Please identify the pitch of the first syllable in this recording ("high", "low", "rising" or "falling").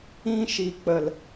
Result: high